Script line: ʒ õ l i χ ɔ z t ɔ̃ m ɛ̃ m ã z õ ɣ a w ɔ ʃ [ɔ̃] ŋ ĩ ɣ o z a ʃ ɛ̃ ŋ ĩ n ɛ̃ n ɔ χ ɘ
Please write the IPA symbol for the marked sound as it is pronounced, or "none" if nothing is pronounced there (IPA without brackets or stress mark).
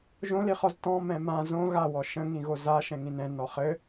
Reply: ə̃